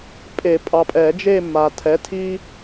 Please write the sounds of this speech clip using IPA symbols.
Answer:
pʼe˨˩˦pʼɑ˨pʼɛ˨˩˦d͡ʒe˦˨ mːa˨tʰɛ˨˥tʰi˦

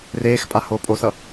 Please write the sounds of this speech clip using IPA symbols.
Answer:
reːxpʼa hoːpʼosʌ

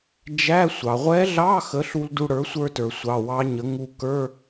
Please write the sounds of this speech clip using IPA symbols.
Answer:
d͡ʒæ˧˥˧ sʷɑ˩ʁʷɛ˧˥ɮɑ˧˥˧ xə˩˥ɬu˧l du˧ɽə˞˩˥sʷə˞˧tə˞˩ sʷɑ˩˧˩wɑ˧˥ɲə˩˥ ŋu˧kə˞˧˥˧

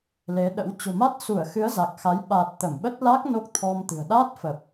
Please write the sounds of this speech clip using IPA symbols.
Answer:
le˨˦ɗə̰˧˥w t͡ɕo̤˨˩ma˦˥t̚su˧˩ə̯xɨ˨˦ə̯ za˨˩k̚xa˨˦j ɓaː˨˩t̚ t̪ə˧˩mɓə˦˥t̚ la˦˥k̚ no˦˥k̚t̪ʰɔ˧mt̪ɨ̤˨˩ə̯ ɗaː˦˥t̚fə˨˩p̚

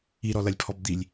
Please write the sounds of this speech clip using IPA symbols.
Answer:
iɾɔlɐlʲpʰɔb d̪ilʲ

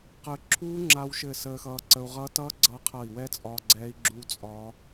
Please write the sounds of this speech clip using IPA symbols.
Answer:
qə˦˥ ǁʰuː˦˥ŋ͡ǁa˧wʃɘ˧˩ səː˧xʌː˧ǀə˧u̯ʁʌː˦˥t ʌ˦˥ɡ͡ǀʌ˧ qʰʌ˧˩i̯wɛ˦˥t͡sʼɒ˧ ɡ͡ǀɛ˦˥i̯ɡ͡ǁu˦˥t͡sʼɒ˦˥

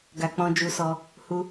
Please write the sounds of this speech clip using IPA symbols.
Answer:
ɡa˧k͡pɔ̃˧d͡ʒu˧sɔ˧ | hu˧

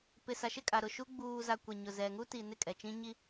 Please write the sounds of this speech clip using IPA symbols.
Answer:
pɪ˨ sa˨ʃɪ˦˨kʼa˨ ɾʊ˨ʃu˦ ɡ͡buː˨za˨ kʷe˨ ɲʊ˨zɛ˨ ŋu˦ti˨nɪ˦˨ kʼɛ˨t͡ʃĩ˦ ɲi˦

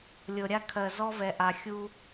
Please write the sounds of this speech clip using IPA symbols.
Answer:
lʲɤ˨ɾʲa˦kʰɜ˨ zɔ˦vɛ˨ʔa˨xʲu˦

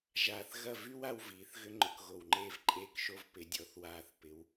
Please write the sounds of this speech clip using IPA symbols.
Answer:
ʒaː˧θ ɣɐ˥˧ vy˥w a˥wviː˩˧θɣʏ˥ ŋ͡ǃʊ˧kɣo˧˩wŋ͡ǃeː˥˧v ǃʼeː˥kʃo˥v pɪ˩˧dʲɔ˩˧θwaː˧˩θ pɪ˩˧w

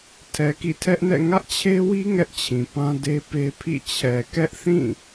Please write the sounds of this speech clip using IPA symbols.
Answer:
tʰɛ˨kḭ˦˨tʰɛ˦ʔnɛ̰˦˨ ŋä˦ʔt͡ɕʰe˦wi˦ ŋɛ˦ʔt͡ɕʰĩ˨pã˦ de˦pe˦pʰḭ˦˨ t͡ɕʰɛ˨kɛ˦ʔθĩ˦˨

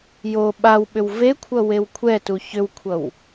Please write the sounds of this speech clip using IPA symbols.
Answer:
jo ɓawɓʏw vekʷʰʌ wewkʷʰɛtu çʏwkʷʰʌw

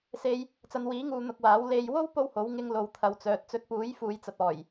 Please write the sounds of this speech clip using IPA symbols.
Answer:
se˧j | t͡sɐ˨˧nwiː˨˥ŋuː˨ n̪ʊ˧k̚waː˨˥w le˨˧j wo˥w po˥who˨˥w ŋɪ˧ŋ lo˨wt̪ʰɐ˨wt͡sœː˨t̚ t͡sɵ˧t̚puː˨˥jfuː˨jt͡sɐ˨t̚ ɔː˨˩j

